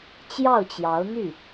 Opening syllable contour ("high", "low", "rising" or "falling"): falling